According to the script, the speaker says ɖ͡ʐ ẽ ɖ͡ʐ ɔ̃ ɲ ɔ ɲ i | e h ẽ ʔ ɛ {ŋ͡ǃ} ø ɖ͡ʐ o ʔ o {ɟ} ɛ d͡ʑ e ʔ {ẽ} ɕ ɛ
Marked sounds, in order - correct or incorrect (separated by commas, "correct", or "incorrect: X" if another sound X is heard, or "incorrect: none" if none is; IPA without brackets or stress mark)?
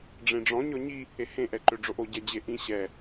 incorrect: ǃ, correct, incorrect: ĩ